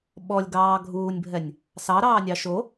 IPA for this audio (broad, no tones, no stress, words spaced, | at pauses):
ɓɔlʲɡɑː ɡʱuːnʲbʱɛnʲ | sɑɾɑːnʲɑ ʃo